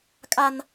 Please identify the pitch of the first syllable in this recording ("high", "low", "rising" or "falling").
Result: high